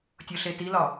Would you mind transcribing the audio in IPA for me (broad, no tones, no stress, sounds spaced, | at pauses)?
tʲ o ɬ e t i l ɒ